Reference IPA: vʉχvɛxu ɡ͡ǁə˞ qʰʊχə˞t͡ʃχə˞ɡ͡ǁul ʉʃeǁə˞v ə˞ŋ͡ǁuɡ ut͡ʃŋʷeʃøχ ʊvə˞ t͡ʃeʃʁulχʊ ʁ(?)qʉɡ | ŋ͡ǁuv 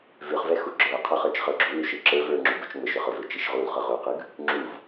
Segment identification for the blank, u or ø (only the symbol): u